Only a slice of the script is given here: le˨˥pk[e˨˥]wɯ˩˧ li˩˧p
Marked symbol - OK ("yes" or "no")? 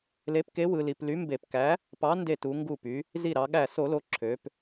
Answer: yes